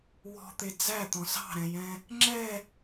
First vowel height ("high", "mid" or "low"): mid